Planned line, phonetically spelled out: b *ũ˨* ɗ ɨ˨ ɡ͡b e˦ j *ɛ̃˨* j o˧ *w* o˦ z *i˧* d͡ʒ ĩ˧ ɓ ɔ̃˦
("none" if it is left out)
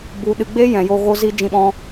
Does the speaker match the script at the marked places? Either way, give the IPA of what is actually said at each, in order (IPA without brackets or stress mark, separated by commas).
u˨, ɛ̃˨, ɣ, i˦